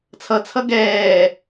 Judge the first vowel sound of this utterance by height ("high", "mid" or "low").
mid